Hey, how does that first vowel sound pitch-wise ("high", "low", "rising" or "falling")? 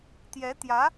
rising